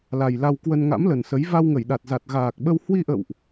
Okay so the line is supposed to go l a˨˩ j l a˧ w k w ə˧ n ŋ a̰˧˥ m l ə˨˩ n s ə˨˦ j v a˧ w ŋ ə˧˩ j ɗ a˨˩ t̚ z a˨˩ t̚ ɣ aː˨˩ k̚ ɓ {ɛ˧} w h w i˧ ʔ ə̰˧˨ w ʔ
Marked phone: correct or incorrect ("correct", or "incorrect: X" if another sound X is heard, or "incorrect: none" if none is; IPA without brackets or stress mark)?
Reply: incorrect: ə˧